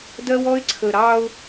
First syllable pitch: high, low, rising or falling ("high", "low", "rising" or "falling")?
high